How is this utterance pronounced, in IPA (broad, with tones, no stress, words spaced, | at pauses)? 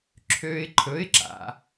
ǁʰø˦˥ɪ̯ǃʰɵ˧˥˧ɪ̯ ǁa̰˩˧